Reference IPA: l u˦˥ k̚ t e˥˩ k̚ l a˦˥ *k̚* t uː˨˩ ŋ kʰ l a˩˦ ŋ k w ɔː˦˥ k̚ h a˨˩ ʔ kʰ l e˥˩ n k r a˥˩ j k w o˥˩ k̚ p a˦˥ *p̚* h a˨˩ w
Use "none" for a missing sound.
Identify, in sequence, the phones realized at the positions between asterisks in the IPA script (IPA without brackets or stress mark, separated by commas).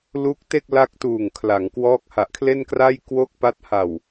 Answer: k̚, t̚